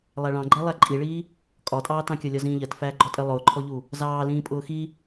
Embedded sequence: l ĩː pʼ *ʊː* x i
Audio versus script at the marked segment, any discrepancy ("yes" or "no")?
no